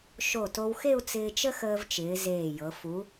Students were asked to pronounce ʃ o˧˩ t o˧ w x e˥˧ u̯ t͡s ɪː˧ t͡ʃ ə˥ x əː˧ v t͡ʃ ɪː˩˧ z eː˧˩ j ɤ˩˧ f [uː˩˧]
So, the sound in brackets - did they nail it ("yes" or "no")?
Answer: no